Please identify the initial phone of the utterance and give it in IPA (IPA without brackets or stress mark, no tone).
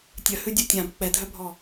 tʲ